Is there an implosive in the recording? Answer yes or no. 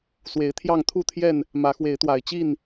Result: no